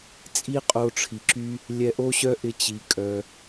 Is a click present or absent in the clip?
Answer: present